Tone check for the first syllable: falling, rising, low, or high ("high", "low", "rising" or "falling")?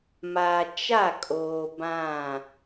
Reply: low